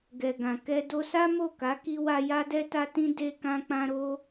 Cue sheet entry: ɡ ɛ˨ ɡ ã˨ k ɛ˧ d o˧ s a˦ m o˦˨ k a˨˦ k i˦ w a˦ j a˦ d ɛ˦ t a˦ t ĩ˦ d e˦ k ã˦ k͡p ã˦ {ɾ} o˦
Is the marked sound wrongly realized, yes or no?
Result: no